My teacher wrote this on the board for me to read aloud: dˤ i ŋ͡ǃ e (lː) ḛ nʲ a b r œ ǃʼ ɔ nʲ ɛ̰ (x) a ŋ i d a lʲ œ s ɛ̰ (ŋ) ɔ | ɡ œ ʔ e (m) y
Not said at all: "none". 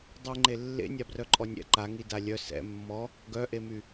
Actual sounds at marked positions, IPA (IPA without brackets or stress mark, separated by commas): lː, ǃ, mː, m